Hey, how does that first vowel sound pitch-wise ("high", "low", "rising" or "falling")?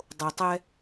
low